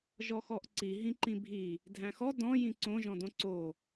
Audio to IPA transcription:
ʒ ɔ x ɔ ʔ ǀ i ɦ ĩ ǃ ĩ bʱ i | dʱ æ̃ x ɔ d ɔ̃ j ĩ ǀ õ ʒ ɔ̃ d õ ǀ o

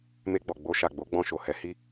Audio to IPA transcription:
m e˧ ɡ͡b ɔ˨ ɡ͡b o˧ ʃ a˨ ɡ͡b o˨˦ ɡ͡b ɔ̃˧ ʃ o˨ h ɛ˨˦ h i˧

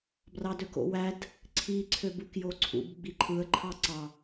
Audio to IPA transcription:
b r ɑ d ø k o̰ w æ d | ǀʰ i ǀʰ ø b u k j o ǀʰ ṵ b ɡ͡b i ǃʰ ɯ ə̯ ǃʰ ɑ ǀ ɑ

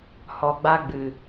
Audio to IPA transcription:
h ɔ˨ ɡ͡b a˧ ɡ͡b ɨ˨

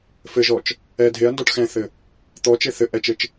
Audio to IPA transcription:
f ɘ ʒ ɔ t͡ʃ | ɛ dʱ e ɐ̯ n d ɔ ʈ x ɛ̃ θ ɘ | t̪ ɔ t͡ʃ e θ ɘ ʔ ɛ t͡ʃ ɘ t͡ʃ

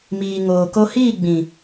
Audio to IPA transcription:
m iː˨ ŋ oː˨ k o˧ h iː˦˨ ɡ͡b ĩ˨

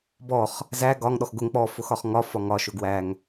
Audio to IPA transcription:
b ɔ χ | z æ ɡ ɒ ŋ ɗ ɔ x ɡ ʊ ŋ k͡p ɔ f ʊ x ɒ χ ŋ ɒ f ɒ ŋ ɒ ʃ ʊ ɡ w æ ŋ

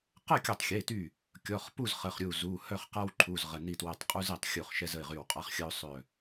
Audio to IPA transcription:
q ə˥˨ kʲ ə˧˩ tˤ xʲ e˩˧˩ t y˧˩ | kʲ ɔ˩˧˩ χ p u˥˨ z χ ə˩˧˩ χ ɾʲ u˧˩ z u˩˧˩ h œ˥˨ χ q a˦ w ǃʰ u˩˧˩ z ʁ ə˩˧˩ n i˥˨ t w ɛ˧˩ tˤ qʼ u˦ z e˧˩ tˤ xʲ u˧˩ χ ʃ ɛ˦ z ə˩˧˩ ɪ̯ ʁ y˧˩ w qʼ a˦ χ xʲ ə˦ ʊ̯ sˤ œ˧˩

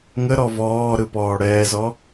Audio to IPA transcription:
ŋ ə ɾ ɔ v ɔː ɾ ɯ p ɔː ɽ ɛː z ɔ

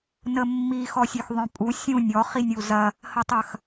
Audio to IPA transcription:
n ə mː i x ɔ sʲ ø x ðˤ œ̃ pʼ u sʲ ũ nʲ ɔ χ i nʲ u z ɐ | h ə tˤ ɐ x

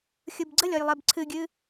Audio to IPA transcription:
xʲ ɯ b ɡ͡ǀ ə lʲ ɔ j lˠ e b ǀʰ ɨ ɡʲ ɨ

